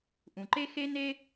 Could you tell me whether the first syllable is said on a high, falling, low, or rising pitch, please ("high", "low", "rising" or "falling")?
low